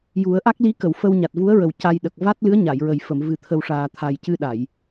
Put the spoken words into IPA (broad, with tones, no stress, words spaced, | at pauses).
ju˨˩˦ə̯ʔa˦˥k̚li˧˥kə˨˩˨w fə˧w ɲa˨˩t̚vu˧˥ə̯ɹə˨˩w ca˧jɗə˨˩k̚ va˦˥t̚lɨ˧˥ə̯ɲa˨˩˨jɹə˨˩j fə˨˩˨mvɨ˨˩t̪ʰə˨˩wʂaː˨˩ t̪ʰa˨˩jcɨ˧ɗa˨˩˨j